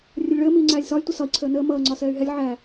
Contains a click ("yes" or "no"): yes